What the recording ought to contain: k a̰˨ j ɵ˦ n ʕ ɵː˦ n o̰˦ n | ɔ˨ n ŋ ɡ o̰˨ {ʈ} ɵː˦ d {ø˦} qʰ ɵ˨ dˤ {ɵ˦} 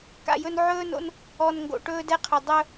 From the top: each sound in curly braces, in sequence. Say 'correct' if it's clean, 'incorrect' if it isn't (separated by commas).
correct, incorrect, correct